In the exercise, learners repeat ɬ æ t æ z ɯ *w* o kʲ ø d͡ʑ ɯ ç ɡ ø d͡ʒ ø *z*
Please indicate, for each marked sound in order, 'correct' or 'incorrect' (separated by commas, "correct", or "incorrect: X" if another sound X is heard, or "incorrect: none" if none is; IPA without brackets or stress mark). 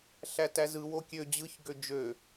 correct, incorrect: none